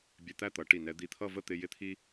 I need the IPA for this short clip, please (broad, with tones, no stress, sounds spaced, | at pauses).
bʲ ɛ˧ t̪ æ˥˧ t̪ ʌ˩˧ ʈ i˧˩ n ɛ˧ d̪ i˧˩ t̪ʰ ʌ˥˧ v ə˥˧ t̪ ɪ˧ j ɪ˥ t̪ʰ i˥